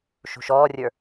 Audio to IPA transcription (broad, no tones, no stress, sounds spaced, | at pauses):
ʃ ṳ ʃ ɔː rʲ ə˞